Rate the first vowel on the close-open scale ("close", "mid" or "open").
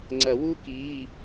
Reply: open